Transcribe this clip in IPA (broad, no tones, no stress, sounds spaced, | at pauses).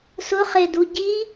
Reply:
s ʊ χ e d u ɟ i